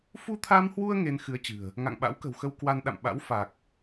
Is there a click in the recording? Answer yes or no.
no